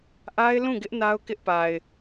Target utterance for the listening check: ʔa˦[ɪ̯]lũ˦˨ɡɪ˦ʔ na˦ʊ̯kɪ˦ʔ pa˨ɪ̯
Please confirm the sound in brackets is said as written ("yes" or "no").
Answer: yes